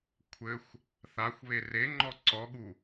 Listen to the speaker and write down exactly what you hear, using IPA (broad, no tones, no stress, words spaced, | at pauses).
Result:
kʷʰɘxʷ | θaxʷ βereŋ͡ǃɔ ǀɔɠu